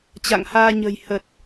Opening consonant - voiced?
no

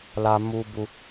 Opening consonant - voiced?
yes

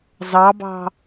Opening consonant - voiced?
yes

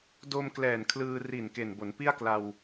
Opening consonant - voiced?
yes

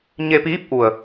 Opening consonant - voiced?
yes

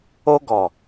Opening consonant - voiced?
yes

